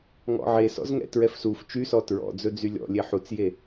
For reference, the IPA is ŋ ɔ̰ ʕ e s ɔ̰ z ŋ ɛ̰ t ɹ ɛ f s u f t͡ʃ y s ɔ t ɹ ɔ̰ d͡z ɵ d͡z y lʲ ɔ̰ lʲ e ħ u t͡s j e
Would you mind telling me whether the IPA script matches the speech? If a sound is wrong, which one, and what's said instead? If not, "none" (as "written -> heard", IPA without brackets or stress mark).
none